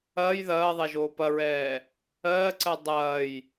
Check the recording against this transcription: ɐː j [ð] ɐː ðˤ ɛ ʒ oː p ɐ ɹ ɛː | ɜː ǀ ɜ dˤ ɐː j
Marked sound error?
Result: no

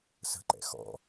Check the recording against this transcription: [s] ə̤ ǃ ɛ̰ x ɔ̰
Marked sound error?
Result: no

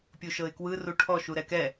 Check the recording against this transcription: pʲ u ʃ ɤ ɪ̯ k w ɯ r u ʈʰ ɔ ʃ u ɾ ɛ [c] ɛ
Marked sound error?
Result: yes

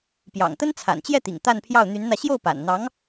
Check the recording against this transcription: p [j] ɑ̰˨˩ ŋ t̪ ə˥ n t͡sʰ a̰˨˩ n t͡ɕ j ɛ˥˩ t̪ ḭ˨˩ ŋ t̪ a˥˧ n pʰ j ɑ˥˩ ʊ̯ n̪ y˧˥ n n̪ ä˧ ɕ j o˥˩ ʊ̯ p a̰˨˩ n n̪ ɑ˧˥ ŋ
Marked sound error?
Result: no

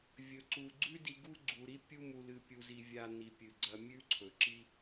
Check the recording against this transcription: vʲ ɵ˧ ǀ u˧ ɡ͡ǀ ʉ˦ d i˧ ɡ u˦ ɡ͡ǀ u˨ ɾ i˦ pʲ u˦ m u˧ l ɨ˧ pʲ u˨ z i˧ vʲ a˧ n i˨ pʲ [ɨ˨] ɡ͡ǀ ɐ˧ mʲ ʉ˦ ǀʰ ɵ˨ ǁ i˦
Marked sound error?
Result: no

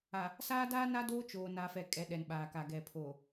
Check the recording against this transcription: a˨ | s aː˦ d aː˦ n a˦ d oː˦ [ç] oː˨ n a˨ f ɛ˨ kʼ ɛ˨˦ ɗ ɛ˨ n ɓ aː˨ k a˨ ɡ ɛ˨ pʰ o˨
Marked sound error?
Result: yes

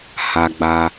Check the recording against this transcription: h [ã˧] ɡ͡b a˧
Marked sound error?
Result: yes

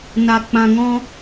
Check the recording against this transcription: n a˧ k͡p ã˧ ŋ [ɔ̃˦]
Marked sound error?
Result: no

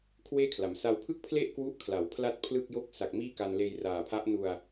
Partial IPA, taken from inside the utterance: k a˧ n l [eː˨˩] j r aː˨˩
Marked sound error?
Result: yes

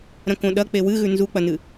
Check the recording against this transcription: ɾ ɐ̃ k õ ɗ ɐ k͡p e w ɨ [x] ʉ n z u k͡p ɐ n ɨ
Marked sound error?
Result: yes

